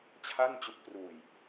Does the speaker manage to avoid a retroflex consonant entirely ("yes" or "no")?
yes